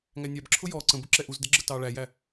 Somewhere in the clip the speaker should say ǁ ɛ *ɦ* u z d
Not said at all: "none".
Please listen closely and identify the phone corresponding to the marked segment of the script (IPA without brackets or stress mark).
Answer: ʔ